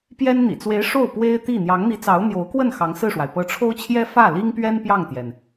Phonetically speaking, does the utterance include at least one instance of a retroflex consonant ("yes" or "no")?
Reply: yes